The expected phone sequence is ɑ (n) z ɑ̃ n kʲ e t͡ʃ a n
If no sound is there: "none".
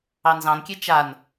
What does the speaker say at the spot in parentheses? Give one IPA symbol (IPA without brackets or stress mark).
n